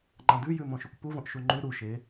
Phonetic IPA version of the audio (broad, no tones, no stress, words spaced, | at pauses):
ŋ͡ǃãdʉjʉ mõʃʉkʷpuvõʔ ʃuŋ͡ǃʉ ɾuʃe